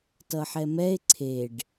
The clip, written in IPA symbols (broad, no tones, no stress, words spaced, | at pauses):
tʌħɛmɛe̯ ǀʰeɖ